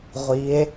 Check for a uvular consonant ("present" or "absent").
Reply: present